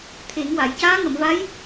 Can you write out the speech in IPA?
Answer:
t̪ʰ e˨˩˦ ŋ w a˨˩˨ j c aː˧˥ ŋ ə˨˩˨ m v a˧˥ j

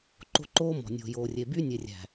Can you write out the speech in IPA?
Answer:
ǃ o̤˦ ǃ oː˦ m ɔ̤˨ nʲ o̤˨ j oː˨ rʲ e˨ b y˦ nʲ e˨ rʲ æ̤˨

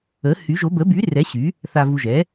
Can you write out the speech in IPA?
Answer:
ə˨˥ h y˨˥ ʒ o˨˥ b ə˨˥ b y˨˥ r ɛ˨˥ ɕ y˨˥ | θ a˧ v u˧ ʒ ɛ˨˥

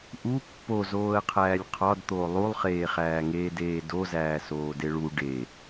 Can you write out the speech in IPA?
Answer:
ʔ u pː o z oː ə̯ qʰ æː lʲ qʰ ɒ d t̪ oː lˠ u lˠ χ eː χ æː ŋ eː d eː d o z æː s oː d e ɭ u ɖ e

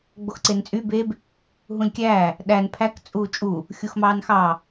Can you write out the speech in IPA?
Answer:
ɡ͡b o x ǀ e n t͡sʼ y b e b | ɦ ũ lʲ kʲ æː | ɗ æ n pʰ æ k t͡sʼ uː t͡ʃʼ u | xʲ u x m ɑː n x ɑ

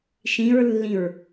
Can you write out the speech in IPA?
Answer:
ʃ ĩ ɹ lː ĩ ɹ

